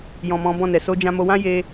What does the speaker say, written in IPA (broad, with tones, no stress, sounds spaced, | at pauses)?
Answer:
j ɔ̃˨ m ɔ̃˨˦ b ɔ̃˦˨ n ɛ˨ s o˧ d͡ʒ ã˧ m o˧ w ã˦ j e˦